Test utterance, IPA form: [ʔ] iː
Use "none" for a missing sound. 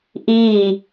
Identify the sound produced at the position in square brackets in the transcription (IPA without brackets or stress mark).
ʔ